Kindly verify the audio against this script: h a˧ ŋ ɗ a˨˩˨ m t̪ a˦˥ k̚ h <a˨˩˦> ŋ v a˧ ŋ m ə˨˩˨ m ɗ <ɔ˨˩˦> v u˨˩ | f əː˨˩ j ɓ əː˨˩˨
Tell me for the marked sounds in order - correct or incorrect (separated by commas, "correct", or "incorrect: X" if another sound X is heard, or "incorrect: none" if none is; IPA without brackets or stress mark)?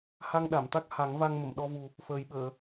correct, incorrect: ɔ˧